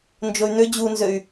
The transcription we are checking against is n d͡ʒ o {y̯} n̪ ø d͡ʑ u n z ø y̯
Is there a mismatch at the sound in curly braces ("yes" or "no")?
no